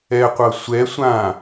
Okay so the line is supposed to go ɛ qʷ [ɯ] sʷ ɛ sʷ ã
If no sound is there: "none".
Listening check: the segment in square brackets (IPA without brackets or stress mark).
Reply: ɤ